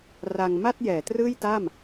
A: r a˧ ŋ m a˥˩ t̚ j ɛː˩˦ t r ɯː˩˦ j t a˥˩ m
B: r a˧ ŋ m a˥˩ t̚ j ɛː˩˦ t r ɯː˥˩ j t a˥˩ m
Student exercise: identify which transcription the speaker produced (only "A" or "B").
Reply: B